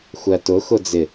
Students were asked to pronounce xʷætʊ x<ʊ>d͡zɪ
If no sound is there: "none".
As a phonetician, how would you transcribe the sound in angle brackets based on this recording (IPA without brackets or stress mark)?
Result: ʊ